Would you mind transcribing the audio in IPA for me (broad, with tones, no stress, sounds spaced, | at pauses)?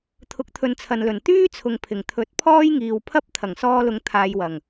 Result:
t̪ʰ ʊ˨˥ k̚ t̪ʰ ɵ˨˧ n t͡sʰ ɐ˨ n l ɵ˨˩ n t̪ yː˥ t͡sʰ ʊ˨ ŋ pʰ ɪ˨˩ ŋ t̪ʰ ɵ˨˥ t̚ pʰ ɔː˥ j ŋ iː˨ w pʰ ɐ˥ p̚ t̪ʰ ɐ˨˩ ŋ s ɔː˧ l ʊ˨˧ ŋ t̪ʰ aː˨˧ j w ɐ˨˩ ŋ